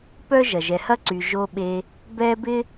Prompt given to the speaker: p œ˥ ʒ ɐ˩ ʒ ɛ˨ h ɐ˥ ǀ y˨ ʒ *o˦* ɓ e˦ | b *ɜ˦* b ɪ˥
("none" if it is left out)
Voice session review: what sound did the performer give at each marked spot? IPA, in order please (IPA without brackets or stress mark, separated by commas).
o˦, ɛ˦